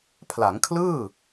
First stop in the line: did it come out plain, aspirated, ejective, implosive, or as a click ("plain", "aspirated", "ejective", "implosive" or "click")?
aspirated